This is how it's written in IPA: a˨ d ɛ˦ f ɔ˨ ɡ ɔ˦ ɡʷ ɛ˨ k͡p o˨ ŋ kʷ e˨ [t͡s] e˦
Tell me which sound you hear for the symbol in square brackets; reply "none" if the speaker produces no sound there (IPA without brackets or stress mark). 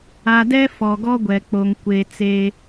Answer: t͡s